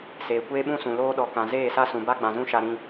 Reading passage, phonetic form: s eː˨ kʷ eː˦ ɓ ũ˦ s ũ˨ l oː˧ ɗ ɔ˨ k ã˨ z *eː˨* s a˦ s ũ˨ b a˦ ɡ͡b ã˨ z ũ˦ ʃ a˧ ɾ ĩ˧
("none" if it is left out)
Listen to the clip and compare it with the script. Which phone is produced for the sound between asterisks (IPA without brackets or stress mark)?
eː˦˨